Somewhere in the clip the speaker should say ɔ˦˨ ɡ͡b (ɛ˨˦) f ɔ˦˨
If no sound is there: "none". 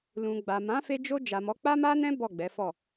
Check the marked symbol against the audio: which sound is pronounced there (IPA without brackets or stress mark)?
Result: ɛ˨˦